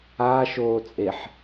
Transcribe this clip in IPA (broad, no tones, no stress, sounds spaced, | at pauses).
aː ʃ oː t͡sʼ e ħ